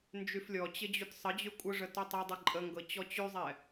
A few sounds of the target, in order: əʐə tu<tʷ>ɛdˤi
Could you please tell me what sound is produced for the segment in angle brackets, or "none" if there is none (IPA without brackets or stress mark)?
tˤ